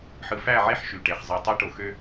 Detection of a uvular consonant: present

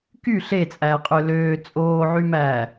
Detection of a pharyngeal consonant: present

